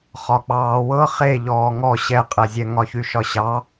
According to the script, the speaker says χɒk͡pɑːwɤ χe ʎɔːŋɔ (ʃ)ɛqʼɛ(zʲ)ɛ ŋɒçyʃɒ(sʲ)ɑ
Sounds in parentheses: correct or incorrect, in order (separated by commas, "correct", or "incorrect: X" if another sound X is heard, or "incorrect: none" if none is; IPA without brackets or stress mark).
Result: incorrect: ɕ, correct, incorrect: ɕ